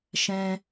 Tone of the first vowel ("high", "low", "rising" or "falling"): high